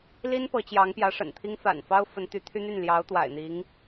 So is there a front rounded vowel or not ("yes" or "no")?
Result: yes